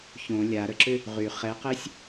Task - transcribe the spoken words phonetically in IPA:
ç õ lʲ a ɾ ə ǁ ʏ | ʁ y χ ɛ q ɛ sʲ

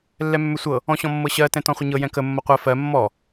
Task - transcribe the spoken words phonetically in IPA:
lː ɛ mː ɵ sʷ ɤ | ɔ̃ ɕ ɔ̃ mː ɤ ɕ ɜ t ɛ̃ t ɔ̃ χʷ ə ɲ ɤ j ɛ̃ k ə mː ʌ qʷ ɜ f ɜ mː ɔ

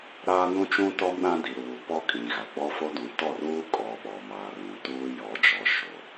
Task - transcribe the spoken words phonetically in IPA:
ɾ aː˦ n ũ˦ t͡ʃ ũ˦ t ɔ˦ m ɗ ã˦ d i˨ ɾ uː˨ p ɔ˦ kʼ ĩ˨ ɣ a˨ ɡ͡b ɔ˦ f o˦ d ũ˨ t ɔ˦˨ r uː˦ kʼ ɔ˨ ɓ ɔ˨ m aː˨ r ũ˨ t uː˦ j ɔ˨˦ d͡ʒ ɔ˨˦ ʃ o˨

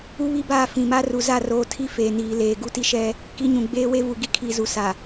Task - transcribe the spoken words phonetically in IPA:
u˦ β i˦ b aː˦˨ f ĩ˨ m a˦ r u˨ z a˦˨ r oː˨ tʰ i˦ f eː˨ n iː˨ l eː˨ ɡ u˦ t i˦ ʃ ɛ˦ | k i˦ ɲ ũ˨ ɡ͡b eː˦ w e˦ v u˨ ɡ i˦ kʰ iː˨ z u˨ s a˨

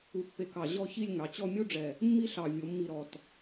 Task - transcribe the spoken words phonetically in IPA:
u˧ pː e˧ k ɑ˧˩ ʑ ɔ˥˧ ç i˥˧ lʲ ŋ ɑ˩˧ t͡ɕ ɔ˥˧ mʲ u˥ ɖ͡ʐ ɛ˧˩ | mː i˥ ɬ ɑ˧˩ vʲ o˩˧ mː i˧˩ ɾ ɔ˧˩ t

